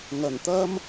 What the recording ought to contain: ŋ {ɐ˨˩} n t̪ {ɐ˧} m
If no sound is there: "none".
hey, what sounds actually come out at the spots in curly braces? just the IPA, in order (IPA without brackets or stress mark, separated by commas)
ɐ˨˩, ɐ˥